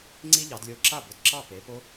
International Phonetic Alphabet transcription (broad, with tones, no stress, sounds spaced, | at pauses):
ŋ͡ǀ i˦ ʎ ɑ˩˧ d lʲ o˧˩ ǁ a˥˩ b ʊ˧˩ d ǁ ɑ˥˩ p e˩˧ p o˦